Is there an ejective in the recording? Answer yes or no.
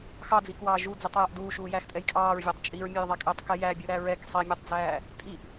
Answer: yes